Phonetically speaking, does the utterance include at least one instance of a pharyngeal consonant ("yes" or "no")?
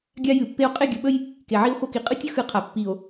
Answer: yes